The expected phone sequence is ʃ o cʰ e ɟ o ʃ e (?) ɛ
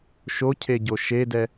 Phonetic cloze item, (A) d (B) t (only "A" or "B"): A